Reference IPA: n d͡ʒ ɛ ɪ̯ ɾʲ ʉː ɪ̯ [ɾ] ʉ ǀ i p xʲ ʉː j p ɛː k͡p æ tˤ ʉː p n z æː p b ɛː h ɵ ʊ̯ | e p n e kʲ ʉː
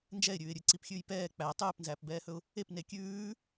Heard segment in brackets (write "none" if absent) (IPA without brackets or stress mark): ɾʲ